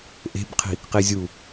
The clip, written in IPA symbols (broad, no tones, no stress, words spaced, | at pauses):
ʔe̤bqʰi̤ | qizʲu